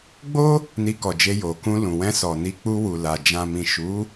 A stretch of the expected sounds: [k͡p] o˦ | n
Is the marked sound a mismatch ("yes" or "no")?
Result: yes